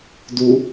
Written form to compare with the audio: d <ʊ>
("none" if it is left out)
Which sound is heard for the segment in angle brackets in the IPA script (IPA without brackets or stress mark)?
u